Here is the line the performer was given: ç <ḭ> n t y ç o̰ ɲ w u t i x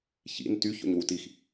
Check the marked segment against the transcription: correct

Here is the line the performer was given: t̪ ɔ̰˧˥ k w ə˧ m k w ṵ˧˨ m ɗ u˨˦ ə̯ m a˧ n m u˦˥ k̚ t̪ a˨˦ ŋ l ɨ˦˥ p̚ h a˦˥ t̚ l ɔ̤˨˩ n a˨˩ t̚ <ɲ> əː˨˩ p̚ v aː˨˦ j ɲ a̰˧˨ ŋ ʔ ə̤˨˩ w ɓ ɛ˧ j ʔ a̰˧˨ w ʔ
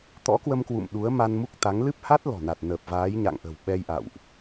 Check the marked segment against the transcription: incorrect: n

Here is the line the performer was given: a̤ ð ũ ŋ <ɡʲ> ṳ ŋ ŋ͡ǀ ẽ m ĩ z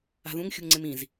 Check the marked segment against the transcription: incorrect: xʲ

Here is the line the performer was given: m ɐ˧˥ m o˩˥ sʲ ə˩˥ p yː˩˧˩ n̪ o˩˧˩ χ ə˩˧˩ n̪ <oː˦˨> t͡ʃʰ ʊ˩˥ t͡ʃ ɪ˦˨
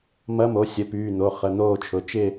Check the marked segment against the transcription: correct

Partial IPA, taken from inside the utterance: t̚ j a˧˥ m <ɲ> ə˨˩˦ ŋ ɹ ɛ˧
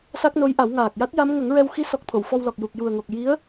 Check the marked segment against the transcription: incorrect: ŋ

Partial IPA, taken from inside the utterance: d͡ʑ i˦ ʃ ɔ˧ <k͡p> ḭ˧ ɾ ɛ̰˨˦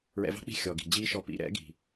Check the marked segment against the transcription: incorrect: p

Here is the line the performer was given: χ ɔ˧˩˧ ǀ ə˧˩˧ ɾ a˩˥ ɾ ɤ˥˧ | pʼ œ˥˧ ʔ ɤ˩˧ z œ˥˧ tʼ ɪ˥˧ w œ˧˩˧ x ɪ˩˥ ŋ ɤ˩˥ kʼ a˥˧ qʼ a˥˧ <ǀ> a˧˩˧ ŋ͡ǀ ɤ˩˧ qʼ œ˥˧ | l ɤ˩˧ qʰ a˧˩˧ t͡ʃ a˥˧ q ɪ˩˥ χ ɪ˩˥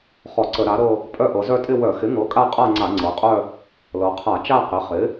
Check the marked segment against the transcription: incorrect: ŋ͡ǀ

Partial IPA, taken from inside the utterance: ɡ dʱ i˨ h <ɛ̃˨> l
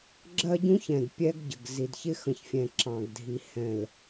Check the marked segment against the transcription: correct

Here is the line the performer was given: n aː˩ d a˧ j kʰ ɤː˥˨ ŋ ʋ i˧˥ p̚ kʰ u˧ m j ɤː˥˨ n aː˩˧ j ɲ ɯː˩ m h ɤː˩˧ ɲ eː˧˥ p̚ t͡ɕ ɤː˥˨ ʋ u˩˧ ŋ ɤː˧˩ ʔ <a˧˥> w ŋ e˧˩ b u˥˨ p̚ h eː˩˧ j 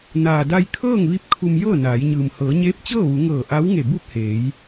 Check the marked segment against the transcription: correct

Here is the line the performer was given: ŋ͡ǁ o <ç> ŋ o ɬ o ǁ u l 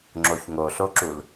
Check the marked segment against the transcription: correct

